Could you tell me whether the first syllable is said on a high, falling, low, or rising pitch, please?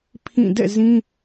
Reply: falling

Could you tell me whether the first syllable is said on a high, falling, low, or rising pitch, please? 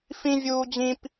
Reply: high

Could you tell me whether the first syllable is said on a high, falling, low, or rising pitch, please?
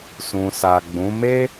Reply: low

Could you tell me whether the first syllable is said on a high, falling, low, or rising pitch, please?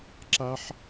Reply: high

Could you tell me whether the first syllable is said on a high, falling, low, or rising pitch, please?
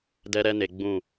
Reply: high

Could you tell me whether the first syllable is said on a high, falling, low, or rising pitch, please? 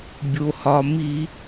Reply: low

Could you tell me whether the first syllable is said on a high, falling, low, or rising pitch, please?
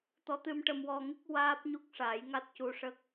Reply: rising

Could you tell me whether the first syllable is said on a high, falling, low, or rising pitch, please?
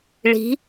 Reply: rising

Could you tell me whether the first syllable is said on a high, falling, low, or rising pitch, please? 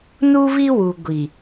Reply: high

